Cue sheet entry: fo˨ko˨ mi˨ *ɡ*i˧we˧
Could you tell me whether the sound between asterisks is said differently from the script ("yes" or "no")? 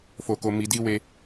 yes